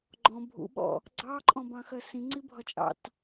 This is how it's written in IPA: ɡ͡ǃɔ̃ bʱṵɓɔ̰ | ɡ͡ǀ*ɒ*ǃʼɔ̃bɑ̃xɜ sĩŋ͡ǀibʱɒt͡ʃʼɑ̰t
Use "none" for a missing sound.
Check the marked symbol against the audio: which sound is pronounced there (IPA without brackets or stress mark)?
ɑ